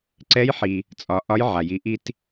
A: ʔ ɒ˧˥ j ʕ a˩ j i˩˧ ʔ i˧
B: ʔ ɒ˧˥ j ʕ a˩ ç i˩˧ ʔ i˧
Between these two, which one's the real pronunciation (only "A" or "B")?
A